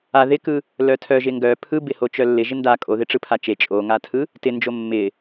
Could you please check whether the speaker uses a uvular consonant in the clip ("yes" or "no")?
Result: no